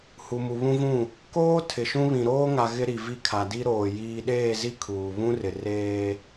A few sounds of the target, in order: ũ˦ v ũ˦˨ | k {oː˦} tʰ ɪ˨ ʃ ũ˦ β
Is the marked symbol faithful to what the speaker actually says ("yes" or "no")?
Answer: yes